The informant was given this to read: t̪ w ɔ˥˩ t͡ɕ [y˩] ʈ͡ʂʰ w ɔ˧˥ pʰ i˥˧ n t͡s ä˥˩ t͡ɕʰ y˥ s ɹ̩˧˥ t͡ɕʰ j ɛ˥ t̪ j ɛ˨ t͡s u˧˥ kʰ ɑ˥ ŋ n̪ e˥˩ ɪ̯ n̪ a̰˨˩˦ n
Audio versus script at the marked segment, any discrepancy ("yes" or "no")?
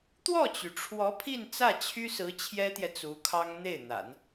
no